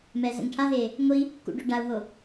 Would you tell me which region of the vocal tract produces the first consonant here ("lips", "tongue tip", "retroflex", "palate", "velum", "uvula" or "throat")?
lips